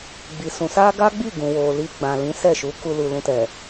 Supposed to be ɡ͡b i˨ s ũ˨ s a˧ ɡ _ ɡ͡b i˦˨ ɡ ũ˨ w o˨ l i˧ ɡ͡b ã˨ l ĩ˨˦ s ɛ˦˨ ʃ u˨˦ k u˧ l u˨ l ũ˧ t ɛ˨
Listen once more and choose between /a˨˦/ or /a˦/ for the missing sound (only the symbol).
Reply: a˦